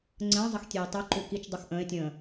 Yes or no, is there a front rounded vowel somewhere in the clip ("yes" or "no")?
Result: no